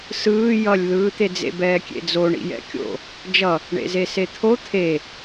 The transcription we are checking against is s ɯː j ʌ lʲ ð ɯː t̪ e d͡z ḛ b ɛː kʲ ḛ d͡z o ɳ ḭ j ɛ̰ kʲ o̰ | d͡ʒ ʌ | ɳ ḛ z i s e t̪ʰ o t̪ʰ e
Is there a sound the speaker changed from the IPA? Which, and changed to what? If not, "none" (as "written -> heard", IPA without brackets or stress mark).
i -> e